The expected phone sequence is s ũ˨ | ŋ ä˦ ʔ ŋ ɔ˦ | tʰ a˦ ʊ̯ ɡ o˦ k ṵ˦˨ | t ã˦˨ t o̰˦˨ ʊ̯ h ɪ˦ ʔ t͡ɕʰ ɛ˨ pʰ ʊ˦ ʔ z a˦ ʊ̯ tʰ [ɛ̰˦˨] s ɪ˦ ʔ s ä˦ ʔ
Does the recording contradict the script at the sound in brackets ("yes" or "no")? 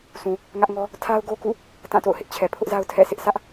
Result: no